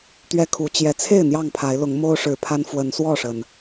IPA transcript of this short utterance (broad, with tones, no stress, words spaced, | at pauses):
t̪ɥɛ˦kʰu˨˦ t͡ɕjɛ˨˦ t͡sʰe˥˨ɪ̯ n̪jɑ˥˨ŋpʰa˨˦ɪ̯ lʊ˨˦ŋ mo˦ʊ̯ʂɻ̩˨˩ pʰa˦nfwə˨˦nswɔ˥˨ʂə˩n